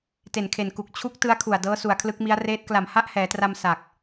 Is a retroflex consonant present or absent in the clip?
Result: absent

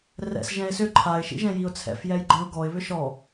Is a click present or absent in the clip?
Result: present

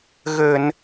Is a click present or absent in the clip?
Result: absent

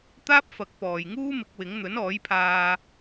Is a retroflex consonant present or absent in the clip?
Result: absent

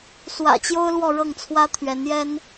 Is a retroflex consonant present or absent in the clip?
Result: present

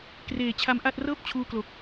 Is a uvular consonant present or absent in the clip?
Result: absent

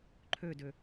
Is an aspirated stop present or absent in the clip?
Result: present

